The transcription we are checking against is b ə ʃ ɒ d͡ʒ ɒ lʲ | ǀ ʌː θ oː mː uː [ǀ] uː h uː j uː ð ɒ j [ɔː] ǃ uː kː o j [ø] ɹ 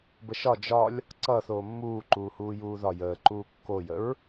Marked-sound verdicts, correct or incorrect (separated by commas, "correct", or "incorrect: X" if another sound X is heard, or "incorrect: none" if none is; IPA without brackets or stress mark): incorrect: ǃ, incorrect: əː, incorrect: ə